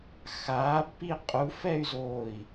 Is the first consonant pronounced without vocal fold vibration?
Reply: yes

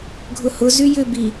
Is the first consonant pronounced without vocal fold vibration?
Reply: no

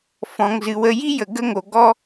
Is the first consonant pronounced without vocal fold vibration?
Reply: yes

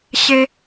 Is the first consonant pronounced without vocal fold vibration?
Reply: yes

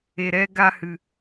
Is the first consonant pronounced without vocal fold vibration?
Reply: no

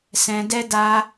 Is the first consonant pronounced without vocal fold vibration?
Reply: yes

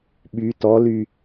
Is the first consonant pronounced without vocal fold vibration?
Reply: no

